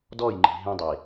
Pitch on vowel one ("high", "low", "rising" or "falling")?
falling